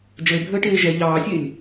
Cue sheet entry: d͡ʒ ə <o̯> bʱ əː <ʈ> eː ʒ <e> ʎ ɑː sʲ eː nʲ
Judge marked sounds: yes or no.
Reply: no, yes, no

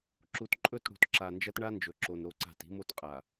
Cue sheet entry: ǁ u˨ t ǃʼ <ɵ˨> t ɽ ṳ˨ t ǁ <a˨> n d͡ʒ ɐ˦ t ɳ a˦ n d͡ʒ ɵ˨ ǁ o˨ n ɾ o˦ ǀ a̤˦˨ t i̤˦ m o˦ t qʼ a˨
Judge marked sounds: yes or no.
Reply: no, yes

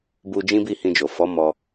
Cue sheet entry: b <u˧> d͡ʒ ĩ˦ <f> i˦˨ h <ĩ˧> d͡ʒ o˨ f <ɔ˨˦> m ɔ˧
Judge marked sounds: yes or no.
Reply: yes, no, yes, yes

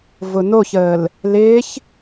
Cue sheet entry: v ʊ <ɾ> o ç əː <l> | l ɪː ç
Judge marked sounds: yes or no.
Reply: no, yes

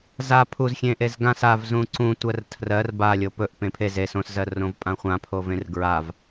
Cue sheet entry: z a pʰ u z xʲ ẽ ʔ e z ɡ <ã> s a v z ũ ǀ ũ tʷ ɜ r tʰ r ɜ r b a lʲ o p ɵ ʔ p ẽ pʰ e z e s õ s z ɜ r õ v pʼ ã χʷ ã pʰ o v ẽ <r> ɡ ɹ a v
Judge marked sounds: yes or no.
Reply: yes, yes

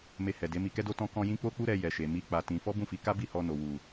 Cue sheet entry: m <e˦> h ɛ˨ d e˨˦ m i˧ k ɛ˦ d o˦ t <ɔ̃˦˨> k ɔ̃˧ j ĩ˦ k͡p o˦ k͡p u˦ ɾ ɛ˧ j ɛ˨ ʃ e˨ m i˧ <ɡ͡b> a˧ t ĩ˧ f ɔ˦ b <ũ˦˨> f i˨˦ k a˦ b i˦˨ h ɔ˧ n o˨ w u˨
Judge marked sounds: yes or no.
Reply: no, no, no, yes

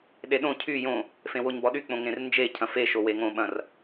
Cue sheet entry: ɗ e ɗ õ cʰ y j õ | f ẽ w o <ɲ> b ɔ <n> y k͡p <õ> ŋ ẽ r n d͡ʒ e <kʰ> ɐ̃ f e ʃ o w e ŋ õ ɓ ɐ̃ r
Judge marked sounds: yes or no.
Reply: yes, no, yes, no

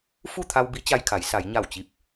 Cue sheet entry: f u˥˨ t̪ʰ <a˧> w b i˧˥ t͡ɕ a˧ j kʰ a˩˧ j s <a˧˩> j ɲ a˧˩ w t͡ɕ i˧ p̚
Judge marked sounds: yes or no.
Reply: yes, no

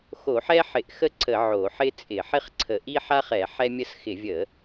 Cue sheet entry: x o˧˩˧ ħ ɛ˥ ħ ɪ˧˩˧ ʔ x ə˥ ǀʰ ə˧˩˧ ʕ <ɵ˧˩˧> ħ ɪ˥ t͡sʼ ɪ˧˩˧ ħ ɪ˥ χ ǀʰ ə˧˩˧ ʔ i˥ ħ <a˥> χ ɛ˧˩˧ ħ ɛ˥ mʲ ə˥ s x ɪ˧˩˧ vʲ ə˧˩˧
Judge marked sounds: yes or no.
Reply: no, yes

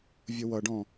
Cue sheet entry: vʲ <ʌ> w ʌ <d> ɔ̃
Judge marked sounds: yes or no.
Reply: yes, no

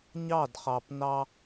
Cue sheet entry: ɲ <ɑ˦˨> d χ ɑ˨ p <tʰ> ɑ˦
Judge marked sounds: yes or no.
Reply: yes, no

